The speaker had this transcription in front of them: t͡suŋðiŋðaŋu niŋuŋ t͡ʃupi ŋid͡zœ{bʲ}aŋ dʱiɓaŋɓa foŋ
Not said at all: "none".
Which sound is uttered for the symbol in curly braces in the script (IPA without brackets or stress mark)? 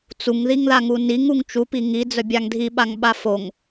bʲ